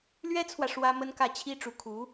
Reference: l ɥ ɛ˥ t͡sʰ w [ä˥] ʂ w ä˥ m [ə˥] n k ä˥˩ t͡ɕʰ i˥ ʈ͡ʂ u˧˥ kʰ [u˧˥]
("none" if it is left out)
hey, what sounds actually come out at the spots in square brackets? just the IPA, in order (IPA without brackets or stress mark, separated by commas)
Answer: ä˨, ə˥, u˧˥